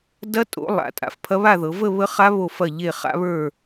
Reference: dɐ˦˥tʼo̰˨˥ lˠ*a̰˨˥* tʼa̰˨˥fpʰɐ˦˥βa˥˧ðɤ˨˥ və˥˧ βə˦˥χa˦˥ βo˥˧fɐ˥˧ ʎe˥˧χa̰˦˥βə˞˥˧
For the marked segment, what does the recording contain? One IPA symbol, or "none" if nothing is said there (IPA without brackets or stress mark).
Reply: a̰˨˥